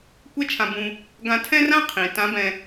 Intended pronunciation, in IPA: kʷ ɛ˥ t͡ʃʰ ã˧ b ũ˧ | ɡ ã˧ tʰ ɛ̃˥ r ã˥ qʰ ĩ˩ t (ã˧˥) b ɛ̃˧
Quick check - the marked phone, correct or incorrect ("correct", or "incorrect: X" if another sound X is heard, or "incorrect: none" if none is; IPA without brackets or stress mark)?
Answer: correct